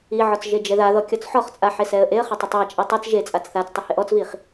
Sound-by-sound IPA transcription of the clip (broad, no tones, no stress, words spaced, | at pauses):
iʕɔt͡s ʒed͡ʒɛðaðɔ kʲɔt͡sħɔχt͡sʼa ħesɛə̯ʔeə̯χɪ tˤɪtˤat͡ʃʼe tˤat͡s ʒe t͡sʼat͡sθat͡stˤɪ heʔɔt͡sviχ